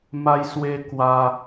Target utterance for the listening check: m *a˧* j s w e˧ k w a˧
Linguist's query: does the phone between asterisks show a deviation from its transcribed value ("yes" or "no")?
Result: no